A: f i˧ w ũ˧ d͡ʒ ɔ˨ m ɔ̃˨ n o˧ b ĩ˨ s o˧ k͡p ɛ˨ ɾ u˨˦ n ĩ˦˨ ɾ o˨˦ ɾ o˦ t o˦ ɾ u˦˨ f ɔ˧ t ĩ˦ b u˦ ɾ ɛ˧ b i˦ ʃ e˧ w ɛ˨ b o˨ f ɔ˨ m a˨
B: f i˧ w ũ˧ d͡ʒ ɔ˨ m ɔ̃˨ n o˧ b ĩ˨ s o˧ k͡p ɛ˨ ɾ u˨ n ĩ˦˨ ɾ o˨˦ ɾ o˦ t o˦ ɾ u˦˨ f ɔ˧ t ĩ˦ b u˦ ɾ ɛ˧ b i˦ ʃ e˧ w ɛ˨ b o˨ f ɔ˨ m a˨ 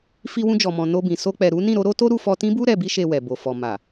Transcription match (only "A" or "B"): A